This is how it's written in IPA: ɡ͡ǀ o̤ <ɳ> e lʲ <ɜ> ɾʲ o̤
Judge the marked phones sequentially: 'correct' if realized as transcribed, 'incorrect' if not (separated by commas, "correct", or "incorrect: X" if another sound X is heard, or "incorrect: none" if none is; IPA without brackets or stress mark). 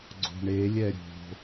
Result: correct, incorrect: ɛ